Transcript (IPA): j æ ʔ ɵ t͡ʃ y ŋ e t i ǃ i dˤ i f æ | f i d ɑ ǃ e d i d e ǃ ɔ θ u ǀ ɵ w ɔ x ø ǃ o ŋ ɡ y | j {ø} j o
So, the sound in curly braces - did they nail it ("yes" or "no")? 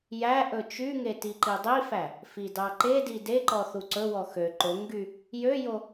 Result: yes